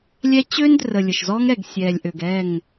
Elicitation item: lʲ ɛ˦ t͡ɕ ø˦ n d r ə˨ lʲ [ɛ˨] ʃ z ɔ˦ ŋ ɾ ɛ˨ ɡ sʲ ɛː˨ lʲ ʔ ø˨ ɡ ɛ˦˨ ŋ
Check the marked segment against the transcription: incorrect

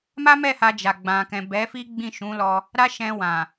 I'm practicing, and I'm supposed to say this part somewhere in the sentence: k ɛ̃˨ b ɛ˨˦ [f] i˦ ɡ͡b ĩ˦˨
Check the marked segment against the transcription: correct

